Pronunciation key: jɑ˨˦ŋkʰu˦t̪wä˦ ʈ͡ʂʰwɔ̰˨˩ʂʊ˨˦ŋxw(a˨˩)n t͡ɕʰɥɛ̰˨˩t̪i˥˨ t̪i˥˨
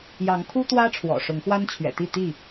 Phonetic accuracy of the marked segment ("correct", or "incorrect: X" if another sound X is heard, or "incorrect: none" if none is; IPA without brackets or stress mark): incorrect: a˦